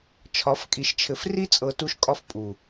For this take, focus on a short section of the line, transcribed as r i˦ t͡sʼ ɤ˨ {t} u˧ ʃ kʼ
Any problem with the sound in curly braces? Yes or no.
no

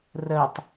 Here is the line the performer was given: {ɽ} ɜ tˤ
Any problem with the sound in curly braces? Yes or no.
yes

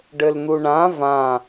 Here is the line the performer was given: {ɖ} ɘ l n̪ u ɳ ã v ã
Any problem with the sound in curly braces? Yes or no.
no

